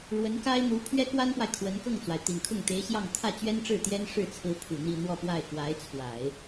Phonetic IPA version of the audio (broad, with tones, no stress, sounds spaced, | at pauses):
ɻ w ə˧˥ n k a˥ ɪ̯ n̪ u˧˥ pʰ ɥ ɛ˥ k w a˥ n p w a˨ ɪ̯ kʰ w ə˧˥ n k ɤ˥˩ ŋ t͡s w a˩ ɪ̯ t̪ i˨˩ n kʰ ʊ˥˩ ŋ t̪ e˧˥ ɪ̯ ɕ j ɑ˥˧ ŋ t̪ʰ ä˥˩ t͡ɕ ɥ ɛ˥ n ʈ͡ʂ ɻ̩˥˩ t̪ j ɛ˥ n ʂ ɻ̩˥˩ t͡sʰ ɹ̩˧˥ pʰ u˨˩ n̪ i˥˧ n̪ w ɔ˥˧ p w a˥˩ ɪ̯ k w a˧˥ ɪ̯ t͡sʰ w a˨˩˦ ɪ̯